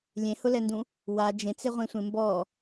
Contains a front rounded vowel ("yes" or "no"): no